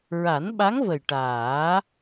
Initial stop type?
implosive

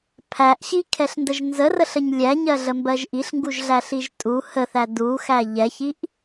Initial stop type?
aspirated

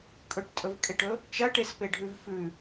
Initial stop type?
ejective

